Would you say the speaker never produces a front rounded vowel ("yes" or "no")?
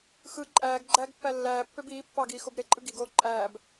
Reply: no